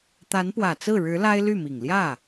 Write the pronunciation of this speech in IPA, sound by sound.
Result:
t̪a˧˥npwä˨˩t͡sɹ̩˥˩ɻɻ̩˧˥ la˥ɪ̯ly˥˩mi˨˩ŋ ljä˥˩

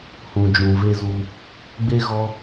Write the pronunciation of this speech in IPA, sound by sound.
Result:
hũ˨d͡ʒũ˨ ve˧zu˧ | ɡ͡be˧ɣɔ˧

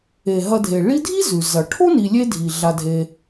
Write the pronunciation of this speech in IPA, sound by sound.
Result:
e˩ɦɐ˨dʱe˩ ɭi˦dʱi˥zʉ˩ zɐ˩ʈʰo˥ ni˨lʲe˦dʱi˩ ɮa˨dʱe˨

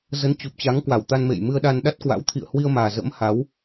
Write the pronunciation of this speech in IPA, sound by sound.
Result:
zə˨˦nt͡ɕu˨˩p̚t͡ɕa˨˦ŋ kwa˧˩wt̪a˧nmḛ˧˨j mɨ˧ə̯ɗa˧nɗa˦˥t̚kwa̰˧˥w t̪ʰḭ˧˨ə̯hwi˧ə̯maː˨˩ zə̰˧˥mha˨˦w

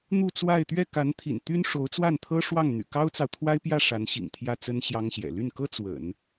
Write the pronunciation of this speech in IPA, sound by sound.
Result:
n̪u˥˧t͡swa˥˧ɪ̯ t̪ɥɛ˥˩ka˧˥nt̪ʰḭ˨˩n t̪y˥n ʂo˧˥ʊ̯t͡swa˥˩n t̪ʰɤ˥ʂwɑ˥˩ŋ n̪y̰˨˩kɑ˥ʊ̯t͡sɑ˨ʊ̯ t̪ʰwa˥ɪ̯pjä˥˩ʂa˧˥nɕḭ˨˩ŋ t̪ʰjä˥˩t͡sə˥n ɕjɑ˥ŋɕjɛ̰˨˩ ly˥˩nkɤ˥ t͡swə̰˨˩˦n

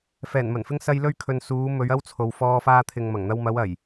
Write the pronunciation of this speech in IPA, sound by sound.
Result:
fɛː˨˩nmɐ˨˩nfɪ˧ŋ sɐ˧j lɵ˧ɥkʰɵ˨n suː˨˧ mɵ˨˧ɥɐ˥wt͡sʰo˨w fɔː˧faː˧t̪ʰɪ˨ŋmɐ˨˩ŋ n̪ɐ˧wmɐ˨˧wɐ˨˩j

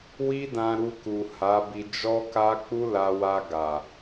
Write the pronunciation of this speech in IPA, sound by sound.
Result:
wi˦dã˧ɾu˧ ku˨ha˨˦bi˧ d͡ʒɔ˦ka˦ k͡pu˦la˧wa˧ ɡa˨

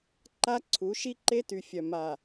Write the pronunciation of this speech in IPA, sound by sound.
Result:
ǃa˦ǀʰu˨˦ ʃi˦ǃe˦ty˨fʲœ˨ ma˨

